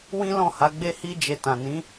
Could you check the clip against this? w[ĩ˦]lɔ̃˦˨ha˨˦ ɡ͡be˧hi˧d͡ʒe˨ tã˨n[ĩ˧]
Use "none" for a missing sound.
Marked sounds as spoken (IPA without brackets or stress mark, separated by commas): ĩ˦, ĩ˨˦